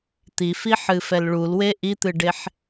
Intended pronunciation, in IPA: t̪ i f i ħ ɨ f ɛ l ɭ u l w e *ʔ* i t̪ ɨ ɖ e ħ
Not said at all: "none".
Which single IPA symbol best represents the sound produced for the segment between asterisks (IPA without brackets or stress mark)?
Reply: ʔ